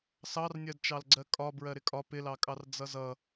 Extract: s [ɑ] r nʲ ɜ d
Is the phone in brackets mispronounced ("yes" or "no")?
no